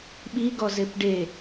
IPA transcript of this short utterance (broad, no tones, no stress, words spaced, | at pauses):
ɓiɡɔz epɖe